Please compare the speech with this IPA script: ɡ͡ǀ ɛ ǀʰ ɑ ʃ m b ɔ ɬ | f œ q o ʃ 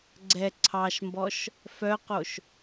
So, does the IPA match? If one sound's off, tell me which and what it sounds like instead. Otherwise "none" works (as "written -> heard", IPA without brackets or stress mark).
ɬ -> ʃ